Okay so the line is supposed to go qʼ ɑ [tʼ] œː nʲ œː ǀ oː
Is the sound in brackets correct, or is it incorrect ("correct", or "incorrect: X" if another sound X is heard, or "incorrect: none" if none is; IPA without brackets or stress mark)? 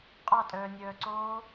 correct